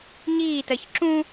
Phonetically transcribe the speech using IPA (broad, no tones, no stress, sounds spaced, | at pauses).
ɲ iː t ɜ ç ǁ ũ